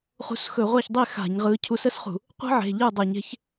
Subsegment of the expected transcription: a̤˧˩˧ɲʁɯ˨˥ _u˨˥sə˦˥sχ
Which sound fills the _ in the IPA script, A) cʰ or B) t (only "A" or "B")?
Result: A